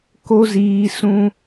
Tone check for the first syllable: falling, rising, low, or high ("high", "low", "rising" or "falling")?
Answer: high